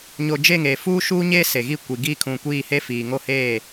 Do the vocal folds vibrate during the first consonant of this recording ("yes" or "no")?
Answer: yes